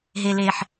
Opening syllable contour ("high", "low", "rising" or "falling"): low